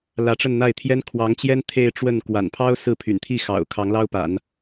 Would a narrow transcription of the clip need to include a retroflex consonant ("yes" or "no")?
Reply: yes